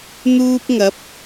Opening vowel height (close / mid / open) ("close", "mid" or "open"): close